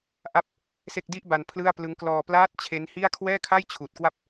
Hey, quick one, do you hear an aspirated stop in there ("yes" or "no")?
yes